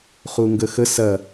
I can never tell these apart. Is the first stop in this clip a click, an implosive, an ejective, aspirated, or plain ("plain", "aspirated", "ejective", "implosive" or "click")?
plain